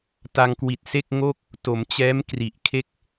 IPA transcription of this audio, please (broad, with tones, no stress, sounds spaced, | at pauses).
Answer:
t a˧ ŋ k w i˨˩ t̚ s e˥˩ k̚ ŋ o˥˩ k̚ | t o˩˦ m t͡ɕ ɛː˦˥ m k r i˨˩ ʔ kʰ e˥˩ k̚